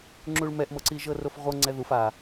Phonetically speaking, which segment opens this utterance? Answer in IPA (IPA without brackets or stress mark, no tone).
ŋ͡ǁ